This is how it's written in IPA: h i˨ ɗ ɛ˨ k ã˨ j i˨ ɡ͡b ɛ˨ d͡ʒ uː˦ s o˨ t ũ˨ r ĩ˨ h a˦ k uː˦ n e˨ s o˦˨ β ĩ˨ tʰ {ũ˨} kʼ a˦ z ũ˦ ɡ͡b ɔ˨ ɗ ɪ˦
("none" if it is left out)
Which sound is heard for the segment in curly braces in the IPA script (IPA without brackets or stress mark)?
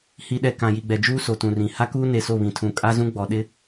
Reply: ũ˨